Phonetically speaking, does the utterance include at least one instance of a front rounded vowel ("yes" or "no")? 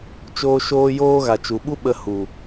no